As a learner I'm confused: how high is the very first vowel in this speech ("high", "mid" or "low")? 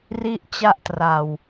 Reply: high